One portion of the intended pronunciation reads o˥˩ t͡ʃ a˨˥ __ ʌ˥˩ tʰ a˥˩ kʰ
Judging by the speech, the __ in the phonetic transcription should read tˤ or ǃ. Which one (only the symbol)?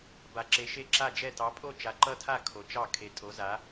ǃ